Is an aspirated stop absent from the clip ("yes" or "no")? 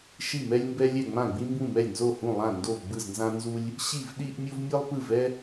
yes